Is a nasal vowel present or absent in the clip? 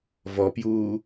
absent